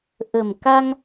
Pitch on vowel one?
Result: low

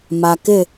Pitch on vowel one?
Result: low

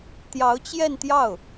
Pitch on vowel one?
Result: rising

